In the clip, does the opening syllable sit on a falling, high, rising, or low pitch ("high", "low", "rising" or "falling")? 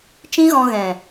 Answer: high